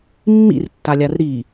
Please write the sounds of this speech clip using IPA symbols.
mː ḭ r tː a lʲ a r ɾ i

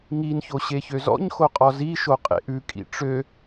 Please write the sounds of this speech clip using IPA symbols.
ŋ i n ç o ɕ e ç ø z ɔ̰ ɲ x o qʼ ɔ z i ʃ o qʼ ḛ ʔ ʉ kʼ ḭ ʈ͡ʂ ø

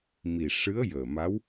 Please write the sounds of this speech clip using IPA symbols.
m i˨˩ ʂ ɨ˧˥ ə̯ j əː˨˩ m a˧˥ w

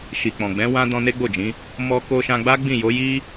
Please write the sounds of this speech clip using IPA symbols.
ʃ i˨ k͡p ɔ̃˨ ɡ͡b ɛ̃˨˦ w ã˦ d ɔ̃˧ n e˦ ɡ͡b o˦˨ d͡ʒ ĩ˨˦ | m ɔ˧ k o˧ ʃ ã˧ ɡ͡b a˦ ɡ͡b ĩ˦˨ j o˨˦ j i˦

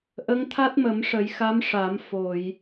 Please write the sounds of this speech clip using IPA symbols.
ʔ ə˧˥ ŋ t̪ʰ a˦˥ t̚ m ə˨˩˦ m ʂ ə˨˩˦ j x a˧˥ m ʂ a˨˩˦ m f o˨˩˨ j

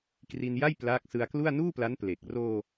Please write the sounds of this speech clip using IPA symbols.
k r i˧ n j a˥˩ j p l aː˦˥ k̚ s ɯ˧ a̯ k l u˥˩ a̯ n uː˥˩ p l a˦˥ n p l e˨˩ k̚ r oː˧

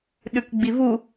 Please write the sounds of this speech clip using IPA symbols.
ɗ ʉ k ɡ͡b i v u

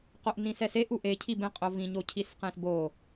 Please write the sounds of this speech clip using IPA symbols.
q o ʔ n ĩ s ɛ s e ʔ u ʔ e cʰ i b ẽ qʼ o v ĩ ɲ o cʰ i s q ẽ s b o

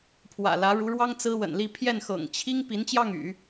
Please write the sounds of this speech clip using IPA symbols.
pʰ w ä̰˨˩ l ä˧˥ ɻ u˧˥ ɻ w ɑ˥ ŋ t͡s ɹ̩˥ w ə̰˨˩ n l i˥˧ pʰ j ɛ˥˩ n x ɤ̰˨˩ ŋ t͡ɕʰ i˥ ŋ p i˧˥ n t͡ɕ j ɑ˥˩ ŋ y̰˨˩˦

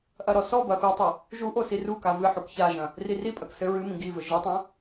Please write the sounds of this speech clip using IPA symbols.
ʔ ɐ ɾ ɔ s ɔ b ɐ x u tˤ ɘ | ʒ u ʔ o s i r u k a v ɨ ħ u k ç a ʒ ɐ̃ | r i r i pʼ ɐ k s ɘ ɹ ɨ m ĩ ɡ i v ɘ ʒ ɨ tˤ ɐ̃

